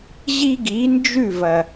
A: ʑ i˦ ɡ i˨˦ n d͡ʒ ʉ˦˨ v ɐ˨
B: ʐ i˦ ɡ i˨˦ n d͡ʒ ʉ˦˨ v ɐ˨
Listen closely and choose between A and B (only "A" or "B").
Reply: A